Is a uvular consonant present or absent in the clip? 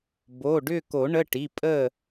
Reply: absent